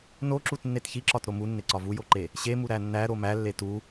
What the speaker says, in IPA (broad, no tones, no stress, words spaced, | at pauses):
noǁutnːet çiǁɒtɾo munːeǀɒ vujoǃe | ɕemuɾæ nːæɾo mælːe tu